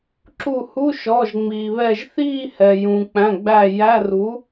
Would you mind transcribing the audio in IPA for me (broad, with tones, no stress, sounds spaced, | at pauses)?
ǁ u˧˩ h u˧˥˧ ʃ ɔ˩˧˩ ʒ ŋ͡m iː˩ β ɛ˧˩ ʒ θ iː˥˧ h ɛ˩ j ũː˩ k͡p æ̃˩˧˩ ɡ͡b æ˧˩ j æ˧˥˧ r u˩˥